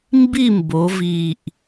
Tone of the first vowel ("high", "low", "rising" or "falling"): falling